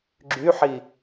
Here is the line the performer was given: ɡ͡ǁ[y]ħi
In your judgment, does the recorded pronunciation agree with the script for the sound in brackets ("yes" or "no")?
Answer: yes